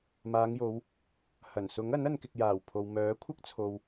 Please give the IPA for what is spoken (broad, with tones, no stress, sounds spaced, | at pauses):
m aː˨˧ ŋ j o˨˧ w | h ɐ˨˩ n s ʊ˨˥ ŋ ɐ˨˥ n ɐ˨ n k ɪ˨ k̚ j aː˨˩ w pʰ o˨ w m œː˨˥ kʷʰ ɐ˥ k̚ t͡sʰ o˨ w